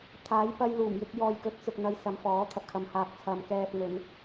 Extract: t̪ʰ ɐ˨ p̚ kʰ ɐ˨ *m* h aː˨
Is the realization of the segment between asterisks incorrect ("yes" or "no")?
no